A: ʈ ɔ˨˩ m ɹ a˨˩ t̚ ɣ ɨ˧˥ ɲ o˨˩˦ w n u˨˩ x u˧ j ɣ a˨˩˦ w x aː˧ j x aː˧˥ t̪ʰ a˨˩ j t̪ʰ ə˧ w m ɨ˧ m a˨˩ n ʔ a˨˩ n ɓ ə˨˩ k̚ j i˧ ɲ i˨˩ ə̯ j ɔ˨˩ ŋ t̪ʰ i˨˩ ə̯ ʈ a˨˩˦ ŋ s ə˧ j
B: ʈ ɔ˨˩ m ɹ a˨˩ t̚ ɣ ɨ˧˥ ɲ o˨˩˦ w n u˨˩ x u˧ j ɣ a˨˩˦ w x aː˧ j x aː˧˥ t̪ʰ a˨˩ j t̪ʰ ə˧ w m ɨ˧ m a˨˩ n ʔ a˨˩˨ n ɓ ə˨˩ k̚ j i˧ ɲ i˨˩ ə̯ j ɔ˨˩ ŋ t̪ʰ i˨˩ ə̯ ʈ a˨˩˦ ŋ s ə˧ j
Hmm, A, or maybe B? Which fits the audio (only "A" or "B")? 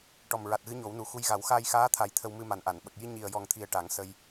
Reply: B